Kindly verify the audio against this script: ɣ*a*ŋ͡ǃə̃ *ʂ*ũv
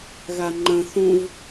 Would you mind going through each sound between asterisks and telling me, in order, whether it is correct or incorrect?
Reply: correct, incorrect: θ

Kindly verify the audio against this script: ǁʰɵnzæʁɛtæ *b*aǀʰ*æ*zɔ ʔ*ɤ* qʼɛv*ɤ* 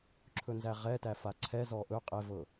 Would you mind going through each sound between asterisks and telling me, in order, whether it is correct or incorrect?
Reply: incorrect: f, incorrect: ɛ, incorrect: ɵ, correct

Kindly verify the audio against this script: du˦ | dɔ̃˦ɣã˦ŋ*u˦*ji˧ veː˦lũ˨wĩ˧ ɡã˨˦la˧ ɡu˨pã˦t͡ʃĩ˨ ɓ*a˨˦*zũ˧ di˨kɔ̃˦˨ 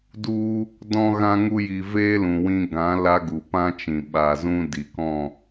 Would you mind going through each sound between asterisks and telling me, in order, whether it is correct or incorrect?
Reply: correct, incorrect: a˨

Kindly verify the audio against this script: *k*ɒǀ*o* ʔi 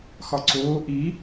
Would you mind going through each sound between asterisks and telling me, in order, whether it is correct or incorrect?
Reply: incorrect: x, incorrect: oː

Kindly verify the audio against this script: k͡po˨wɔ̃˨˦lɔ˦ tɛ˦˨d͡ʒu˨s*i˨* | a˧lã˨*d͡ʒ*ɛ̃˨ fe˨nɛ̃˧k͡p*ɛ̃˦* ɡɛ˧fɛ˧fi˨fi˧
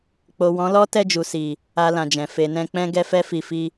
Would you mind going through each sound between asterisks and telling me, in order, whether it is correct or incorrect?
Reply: correct, correct, correct

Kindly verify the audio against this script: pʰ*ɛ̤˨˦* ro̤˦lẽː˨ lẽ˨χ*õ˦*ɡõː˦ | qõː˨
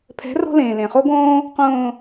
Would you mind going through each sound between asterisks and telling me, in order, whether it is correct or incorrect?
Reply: correct, incorrect: o˦

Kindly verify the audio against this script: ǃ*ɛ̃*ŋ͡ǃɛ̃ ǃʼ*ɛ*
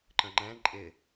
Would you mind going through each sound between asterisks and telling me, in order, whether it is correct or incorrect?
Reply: incorrect: ə̃, incorrect: ɪ

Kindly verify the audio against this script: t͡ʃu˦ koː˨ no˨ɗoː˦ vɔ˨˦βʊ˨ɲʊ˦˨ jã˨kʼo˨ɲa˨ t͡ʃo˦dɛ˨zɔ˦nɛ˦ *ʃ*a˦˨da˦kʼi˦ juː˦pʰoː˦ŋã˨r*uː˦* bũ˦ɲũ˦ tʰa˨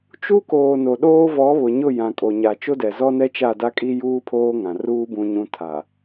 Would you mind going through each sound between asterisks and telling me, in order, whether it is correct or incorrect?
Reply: incorrect: t͡ʃ, correct

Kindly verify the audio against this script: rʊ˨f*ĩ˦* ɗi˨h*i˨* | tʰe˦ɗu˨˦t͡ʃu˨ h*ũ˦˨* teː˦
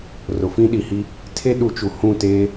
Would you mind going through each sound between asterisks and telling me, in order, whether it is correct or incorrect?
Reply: correct, incorrect: i˦, correct

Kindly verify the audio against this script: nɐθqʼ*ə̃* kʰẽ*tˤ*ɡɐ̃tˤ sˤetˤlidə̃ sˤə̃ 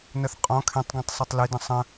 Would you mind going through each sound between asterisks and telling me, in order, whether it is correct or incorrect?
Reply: incorrect: ɔ̃, correct

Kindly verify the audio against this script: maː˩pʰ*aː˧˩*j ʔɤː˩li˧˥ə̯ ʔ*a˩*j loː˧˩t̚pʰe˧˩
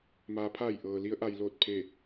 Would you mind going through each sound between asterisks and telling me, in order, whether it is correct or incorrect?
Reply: correct, correct

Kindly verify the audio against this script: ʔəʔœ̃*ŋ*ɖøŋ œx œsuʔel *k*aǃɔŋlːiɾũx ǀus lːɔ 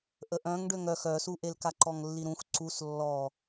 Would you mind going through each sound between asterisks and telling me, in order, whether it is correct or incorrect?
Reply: correct, correct

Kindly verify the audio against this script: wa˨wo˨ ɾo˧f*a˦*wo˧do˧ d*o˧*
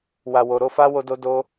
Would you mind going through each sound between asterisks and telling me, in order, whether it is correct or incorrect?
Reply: correct, correct

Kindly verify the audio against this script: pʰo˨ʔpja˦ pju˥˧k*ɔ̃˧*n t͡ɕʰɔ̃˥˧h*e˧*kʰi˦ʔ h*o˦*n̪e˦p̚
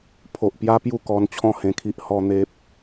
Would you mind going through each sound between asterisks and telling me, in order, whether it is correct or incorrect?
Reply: incorrect: ɔ˧, incorrect: ẽ˧, incorrect: ɔ˦

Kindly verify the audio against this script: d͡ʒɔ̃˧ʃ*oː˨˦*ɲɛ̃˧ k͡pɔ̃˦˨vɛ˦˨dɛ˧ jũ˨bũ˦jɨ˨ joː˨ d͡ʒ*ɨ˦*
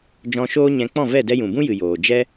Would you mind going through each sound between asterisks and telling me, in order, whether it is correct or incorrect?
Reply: incorrect: oː˦, incorrect: ɛ˦

